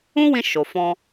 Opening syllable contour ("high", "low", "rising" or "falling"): high